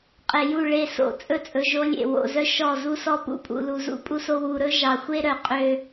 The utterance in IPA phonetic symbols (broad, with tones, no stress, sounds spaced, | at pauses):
qʼ e˨ j u˦˨ ɭ e˦˨ s o̰˦˨ t͡sʼ ɵ˦ t͡sʼ ɵ˨ ʒ o˦ lʲ ḛ˨ w o̰˨ z œ˦ ʃ ɔ˦˨ z u˦ s ɔ˦ p ṵ˦ pʼ ṵ˨ l u˨ z ṵ˦ pʼ u˦ s o˦ w u˨ ɾ ɵ˦ ʒ ɑ˨ xʷ e˦ ɾ œ˨˦ qʼ ø˦